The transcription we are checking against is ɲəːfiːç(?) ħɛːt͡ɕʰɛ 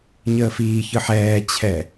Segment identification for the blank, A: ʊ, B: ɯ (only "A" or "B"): B